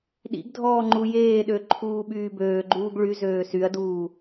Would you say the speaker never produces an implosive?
no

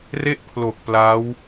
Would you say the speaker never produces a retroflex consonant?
yes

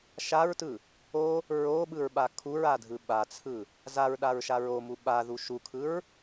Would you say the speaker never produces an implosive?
no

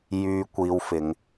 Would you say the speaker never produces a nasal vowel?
yes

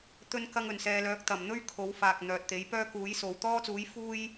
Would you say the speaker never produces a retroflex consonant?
yes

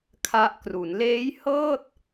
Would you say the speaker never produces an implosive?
yes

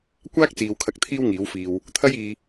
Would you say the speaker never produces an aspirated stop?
no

